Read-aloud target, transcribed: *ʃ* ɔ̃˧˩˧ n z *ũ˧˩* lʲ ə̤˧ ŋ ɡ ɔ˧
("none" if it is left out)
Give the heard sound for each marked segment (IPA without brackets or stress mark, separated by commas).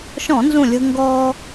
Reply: ʃ, ũ˧˩